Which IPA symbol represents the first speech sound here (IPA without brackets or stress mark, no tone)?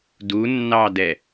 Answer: d